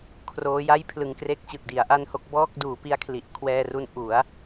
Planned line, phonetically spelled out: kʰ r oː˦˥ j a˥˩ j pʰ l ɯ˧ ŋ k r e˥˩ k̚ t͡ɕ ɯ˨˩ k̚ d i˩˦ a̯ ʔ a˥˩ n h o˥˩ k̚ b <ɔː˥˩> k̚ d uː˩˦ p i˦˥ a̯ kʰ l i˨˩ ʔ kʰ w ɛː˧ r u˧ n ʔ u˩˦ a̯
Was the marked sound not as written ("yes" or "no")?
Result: no